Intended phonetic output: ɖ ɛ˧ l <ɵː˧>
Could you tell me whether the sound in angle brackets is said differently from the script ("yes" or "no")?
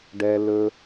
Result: yes